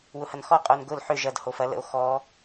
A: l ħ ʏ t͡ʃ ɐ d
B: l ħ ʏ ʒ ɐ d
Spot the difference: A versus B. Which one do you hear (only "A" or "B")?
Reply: B